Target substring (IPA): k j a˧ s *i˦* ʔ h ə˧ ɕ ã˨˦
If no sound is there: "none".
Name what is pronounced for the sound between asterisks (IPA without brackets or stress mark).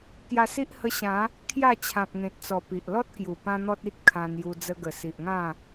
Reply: i˦